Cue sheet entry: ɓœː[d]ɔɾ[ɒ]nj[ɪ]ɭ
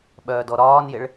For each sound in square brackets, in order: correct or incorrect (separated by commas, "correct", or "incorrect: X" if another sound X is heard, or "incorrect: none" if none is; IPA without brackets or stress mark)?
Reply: correct, incorrect: ɒː, correct